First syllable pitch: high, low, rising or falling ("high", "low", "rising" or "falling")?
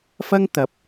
high